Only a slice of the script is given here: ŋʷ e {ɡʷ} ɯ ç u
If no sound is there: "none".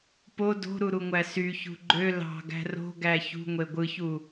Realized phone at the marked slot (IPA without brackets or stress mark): ɡʷ